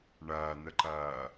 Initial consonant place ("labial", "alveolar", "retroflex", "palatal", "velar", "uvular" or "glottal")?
retroflex